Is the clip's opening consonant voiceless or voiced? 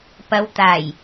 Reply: voiceless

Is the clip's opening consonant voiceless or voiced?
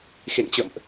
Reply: voiceless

